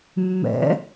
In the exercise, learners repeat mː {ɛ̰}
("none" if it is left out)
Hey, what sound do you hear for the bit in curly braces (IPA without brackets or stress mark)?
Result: ɛ̰